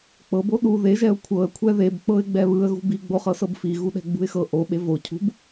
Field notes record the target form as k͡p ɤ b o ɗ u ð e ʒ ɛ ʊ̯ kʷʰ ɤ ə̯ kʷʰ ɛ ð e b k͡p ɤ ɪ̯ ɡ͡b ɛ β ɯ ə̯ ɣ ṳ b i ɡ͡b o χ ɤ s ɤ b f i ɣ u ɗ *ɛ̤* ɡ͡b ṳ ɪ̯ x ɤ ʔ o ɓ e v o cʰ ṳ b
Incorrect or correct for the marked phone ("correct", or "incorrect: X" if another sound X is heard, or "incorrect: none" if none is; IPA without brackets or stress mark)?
correct